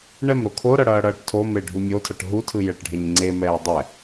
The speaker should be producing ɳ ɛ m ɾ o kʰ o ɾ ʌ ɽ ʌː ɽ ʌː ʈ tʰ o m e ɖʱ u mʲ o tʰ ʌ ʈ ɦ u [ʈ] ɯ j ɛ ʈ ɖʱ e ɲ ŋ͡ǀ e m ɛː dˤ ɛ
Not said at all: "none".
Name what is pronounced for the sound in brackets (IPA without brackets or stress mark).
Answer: tʰ